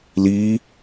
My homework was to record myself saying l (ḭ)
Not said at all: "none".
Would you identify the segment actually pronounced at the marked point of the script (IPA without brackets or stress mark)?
i